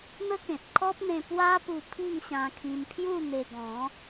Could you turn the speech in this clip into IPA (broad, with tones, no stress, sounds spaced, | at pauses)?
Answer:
n̪ ə˦ k ẽ˨ t̚ kʰ ɔ˦ p̚ n̪ ẽ˧ p w a˦ p u˧ pʰ i˥˧ ŋ ɕ ã˧ kʰ ĩ˧ m pʰ j u˥˧ n̪ e˧ ɡ ɔ̃˨˦